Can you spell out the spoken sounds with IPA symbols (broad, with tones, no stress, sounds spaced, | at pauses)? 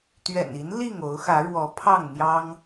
t̪ ɥ ɛ̰˨˩ n i˨˦ n l i˥˨ ŋ o˨˦ ʊ̯ x ä˨˦ ɻ w ɔ˨˦ pʰ ɑ˥˨ ŋ n̪ j ɑ˦ ŋ